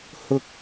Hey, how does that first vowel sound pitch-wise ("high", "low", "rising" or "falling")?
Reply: high